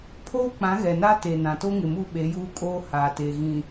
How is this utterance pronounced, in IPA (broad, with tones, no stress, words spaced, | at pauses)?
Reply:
pʰoː˦k͡pã˨˦ɣɛ˨na˦ te˨nã˨to˦ŋɪ˨ mu˦˨ɓe˨˦juː˦kʼoː˦ haː˨teː˨ ɣĩ˨